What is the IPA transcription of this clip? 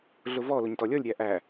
ɮ ʊ v ɔ l ʊ ɲ t ɔ lʲ ɔ lʲ ɾʲ æ ʔ æ

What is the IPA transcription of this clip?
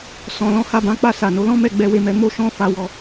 s ɔ̃˨ l ɔ̃˧ h a˧ b ã˧ k͡p a˧ s a˨ n o˨˦ l ɔ̃˦ m ɛ˦˨ ɡ͡b ɛ˧ w e˧ m ɛ˧ m o˦ ʃ ɔ̃˦ f a˧ w ɔ˧

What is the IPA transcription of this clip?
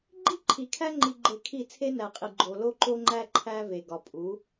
ɡ͡ǃ i˦ ǃʰ i˨ kʰ æ˦ ŋ͡ǃ i˨ ɡ͡ǃ e˨ kʰ i˦˨ t͡sʰ e˦ n æ˨ qʼ i˨ ɡ͡ǃ o˨ l o˦ ǃ o˦ ŋ͡ǃ æ˦ ǃʰ æ˦ v e˨ ɡ ɒ˨ pʼ u˨˦

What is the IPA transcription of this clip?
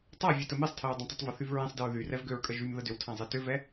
tˤ a vʲ e t ə m e sˤ tʰ ə ɹ dˤ ã tˤ ə tˤ v ɐ θ y v ɹ ɛ̃ sˤ d ɪ ɹ ð y r ɛ v ɡ ø ɹ kʼ ə ʒ y m ð ə d ʏ w tʰ ã zˤ e t ʏ v ɛ

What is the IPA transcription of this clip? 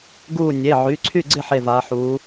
ɡ uː˥˨ nʲ e˩˧˩ ʕ y˩˧˩ ǀʰ y˥˨ ɡ͡ǀ ɪ˥˨ ħ e˥˨ v aː˨˥ ħ uː˨˥

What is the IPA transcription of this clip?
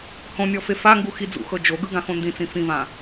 h õ nʲ ɔ f e f a ŋ ɡ u x i d͡z ṵ x ɤ d͡ʒ o ɡ ɯ ɡ ã x õ n d ĩ t͡s ĩ f ĩ v ã

